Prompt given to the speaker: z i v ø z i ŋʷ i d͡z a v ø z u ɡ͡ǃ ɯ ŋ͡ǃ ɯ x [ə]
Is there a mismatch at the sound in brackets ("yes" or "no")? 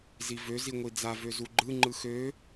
yes